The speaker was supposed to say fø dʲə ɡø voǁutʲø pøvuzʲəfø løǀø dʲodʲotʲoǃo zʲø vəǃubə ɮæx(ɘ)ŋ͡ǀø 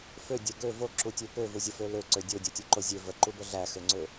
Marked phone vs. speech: incorrect: ø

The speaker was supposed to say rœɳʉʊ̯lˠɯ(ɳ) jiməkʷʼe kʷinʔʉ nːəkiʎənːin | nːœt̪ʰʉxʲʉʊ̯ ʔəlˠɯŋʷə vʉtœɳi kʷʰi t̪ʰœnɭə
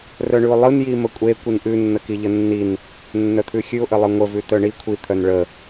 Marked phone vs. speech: incorrect: n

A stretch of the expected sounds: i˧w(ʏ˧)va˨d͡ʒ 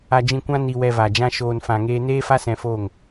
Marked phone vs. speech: incorrect: ɛ˧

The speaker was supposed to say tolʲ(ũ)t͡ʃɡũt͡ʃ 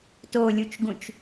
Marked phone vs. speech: incorrect: u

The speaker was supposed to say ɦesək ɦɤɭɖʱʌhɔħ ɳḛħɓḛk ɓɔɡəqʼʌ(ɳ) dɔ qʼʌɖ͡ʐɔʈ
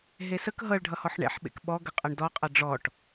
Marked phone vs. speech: correct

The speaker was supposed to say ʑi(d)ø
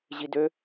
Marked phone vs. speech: correct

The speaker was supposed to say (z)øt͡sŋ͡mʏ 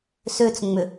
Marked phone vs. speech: incorrect: s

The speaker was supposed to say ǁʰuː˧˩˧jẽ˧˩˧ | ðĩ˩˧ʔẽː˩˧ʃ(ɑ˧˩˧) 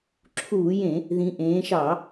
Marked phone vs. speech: correct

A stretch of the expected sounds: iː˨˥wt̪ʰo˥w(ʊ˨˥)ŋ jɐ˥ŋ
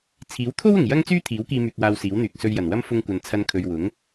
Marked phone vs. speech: incorrect: ʊ˨˩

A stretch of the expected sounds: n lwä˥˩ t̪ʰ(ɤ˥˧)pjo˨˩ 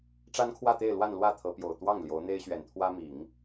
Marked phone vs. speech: incorrect: ɤ˧˥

